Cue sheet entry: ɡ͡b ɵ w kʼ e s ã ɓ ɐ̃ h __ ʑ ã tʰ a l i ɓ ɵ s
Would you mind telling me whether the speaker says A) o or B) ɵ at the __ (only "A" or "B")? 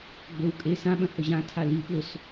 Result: B